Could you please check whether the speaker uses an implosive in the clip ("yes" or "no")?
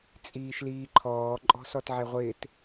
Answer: no